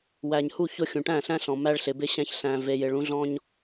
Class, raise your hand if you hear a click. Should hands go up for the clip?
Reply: no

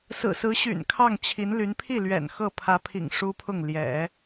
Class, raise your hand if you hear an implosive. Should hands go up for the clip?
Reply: no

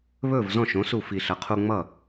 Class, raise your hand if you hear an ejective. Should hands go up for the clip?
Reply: no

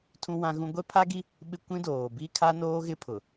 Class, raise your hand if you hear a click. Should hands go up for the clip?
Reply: no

